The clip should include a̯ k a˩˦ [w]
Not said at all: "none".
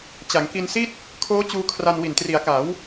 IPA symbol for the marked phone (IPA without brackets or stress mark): w